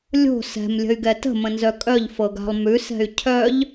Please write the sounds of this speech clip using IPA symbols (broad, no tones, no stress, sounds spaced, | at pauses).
lʲ o̤ s ɛ̤ m lʲ ə̤ y̯ ɡ ɛ t ə̤ m ə̃ n z œ kʼ œ ʎ f ɤ ɡ a̤ lˠ m ʉ s ɛ̤ y̯ cʰ œ ʎ